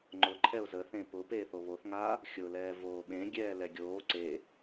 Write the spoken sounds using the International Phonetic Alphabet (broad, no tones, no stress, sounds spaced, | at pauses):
ŋ͡ǃ ʊ ǃʰ ɛ ʊ̯ z ə θ ẽ p ʊ p eː θ o β o θ ŋ aː | xʲ ʊ l ɛː v oː ɓ ẽ ɡʲ ɛː l ɛ ɡʲ oː ǀ e